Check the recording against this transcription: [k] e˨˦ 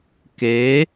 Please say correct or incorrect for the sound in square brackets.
correct